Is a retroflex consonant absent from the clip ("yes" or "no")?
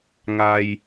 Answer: yes